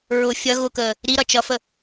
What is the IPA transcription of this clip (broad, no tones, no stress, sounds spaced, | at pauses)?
ɹ ʊ fʲ ʌ ɣ ʊ k əː | ɾ i ɾ ʌ t͡ʃ ʌ f ə